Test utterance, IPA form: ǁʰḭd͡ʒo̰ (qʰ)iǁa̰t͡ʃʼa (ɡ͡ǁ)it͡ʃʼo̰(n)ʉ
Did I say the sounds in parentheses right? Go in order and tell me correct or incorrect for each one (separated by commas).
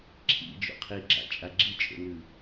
correct, correct, correct